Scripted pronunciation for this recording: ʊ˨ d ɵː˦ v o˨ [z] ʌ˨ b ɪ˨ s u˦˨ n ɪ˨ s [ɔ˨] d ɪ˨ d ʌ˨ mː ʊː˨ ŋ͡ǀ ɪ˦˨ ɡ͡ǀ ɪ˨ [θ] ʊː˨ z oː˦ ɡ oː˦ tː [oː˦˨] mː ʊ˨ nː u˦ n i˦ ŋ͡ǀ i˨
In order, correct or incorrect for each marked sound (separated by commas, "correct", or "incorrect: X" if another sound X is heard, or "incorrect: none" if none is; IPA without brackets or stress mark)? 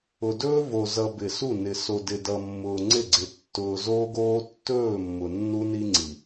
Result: correct, incorrect: o˨, incorrect: tː, incorrect: ɵː˦˨